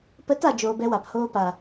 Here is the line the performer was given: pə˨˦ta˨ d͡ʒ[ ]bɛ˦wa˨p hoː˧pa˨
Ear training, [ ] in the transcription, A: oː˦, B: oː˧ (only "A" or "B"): B